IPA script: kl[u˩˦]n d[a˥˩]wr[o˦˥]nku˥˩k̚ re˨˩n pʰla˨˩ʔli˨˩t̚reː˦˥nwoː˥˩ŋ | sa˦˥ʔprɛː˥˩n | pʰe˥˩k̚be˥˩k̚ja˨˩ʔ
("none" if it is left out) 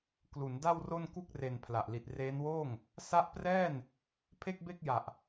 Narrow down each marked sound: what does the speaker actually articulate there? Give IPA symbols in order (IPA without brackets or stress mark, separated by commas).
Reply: u˩˦, a˥˩, o˥˩